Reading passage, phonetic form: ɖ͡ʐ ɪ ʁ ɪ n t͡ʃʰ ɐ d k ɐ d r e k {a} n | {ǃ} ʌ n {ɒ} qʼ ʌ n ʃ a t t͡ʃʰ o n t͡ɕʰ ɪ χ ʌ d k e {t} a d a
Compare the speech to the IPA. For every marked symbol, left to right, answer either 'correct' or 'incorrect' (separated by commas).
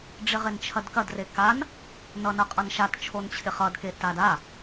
correct, incorrect, incorrect, correct